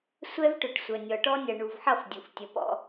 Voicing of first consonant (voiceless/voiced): voiceless